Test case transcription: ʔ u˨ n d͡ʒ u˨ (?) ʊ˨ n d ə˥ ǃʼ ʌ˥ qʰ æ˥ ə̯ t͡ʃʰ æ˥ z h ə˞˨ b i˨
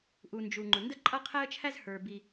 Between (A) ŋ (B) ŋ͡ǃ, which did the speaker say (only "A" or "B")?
B